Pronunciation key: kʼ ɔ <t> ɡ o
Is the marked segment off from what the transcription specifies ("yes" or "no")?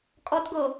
no